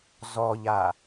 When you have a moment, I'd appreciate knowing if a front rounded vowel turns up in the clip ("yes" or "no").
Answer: no